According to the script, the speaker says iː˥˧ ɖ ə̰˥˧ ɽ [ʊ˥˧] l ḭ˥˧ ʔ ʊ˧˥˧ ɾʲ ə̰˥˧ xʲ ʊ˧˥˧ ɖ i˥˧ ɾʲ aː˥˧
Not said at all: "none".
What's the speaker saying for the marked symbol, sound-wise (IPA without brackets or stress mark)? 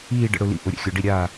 ʊ˥˧